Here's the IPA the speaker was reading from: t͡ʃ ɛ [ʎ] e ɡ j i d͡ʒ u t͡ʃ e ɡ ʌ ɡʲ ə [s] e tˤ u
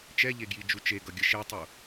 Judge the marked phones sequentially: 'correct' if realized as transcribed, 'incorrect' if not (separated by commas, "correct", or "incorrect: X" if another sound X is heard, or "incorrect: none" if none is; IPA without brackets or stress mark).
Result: correct, incorrect: ʃ